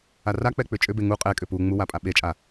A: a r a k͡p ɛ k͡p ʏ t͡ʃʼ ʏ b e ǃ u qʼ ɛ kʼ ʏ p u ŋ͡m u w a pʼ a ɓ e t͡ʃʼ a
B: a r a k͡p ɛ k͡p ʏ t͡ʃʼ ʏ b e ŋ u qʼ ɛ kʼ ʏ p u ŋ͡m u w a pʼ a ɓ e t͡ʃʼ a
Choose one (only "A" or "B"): B